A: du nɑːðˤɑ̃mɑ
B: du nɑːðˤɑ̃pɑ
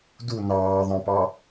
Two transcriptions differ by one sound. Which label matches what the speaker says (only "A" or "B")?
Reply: B